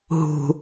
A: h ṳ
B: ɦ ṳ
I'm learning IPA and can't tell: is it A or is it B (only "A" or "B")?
B